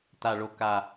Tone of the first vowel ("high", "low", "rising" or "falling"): low